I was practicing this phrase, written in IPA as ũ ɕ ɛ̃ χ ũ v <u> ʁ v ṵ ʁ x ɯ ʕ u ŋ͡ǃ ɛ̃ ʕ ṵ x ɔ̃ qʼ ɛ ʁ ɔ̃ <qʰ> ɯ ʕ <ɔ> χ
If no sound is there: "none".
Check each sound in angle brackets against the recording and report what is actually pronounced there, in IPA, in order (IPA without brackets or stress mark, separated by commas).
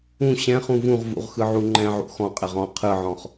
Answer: ũ, qʰ, ɔ̃